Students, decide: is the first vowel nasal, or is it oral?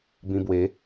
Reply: nasal